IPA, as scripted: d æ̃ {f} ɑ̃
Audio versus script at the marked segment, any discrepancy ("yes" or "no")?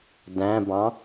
yes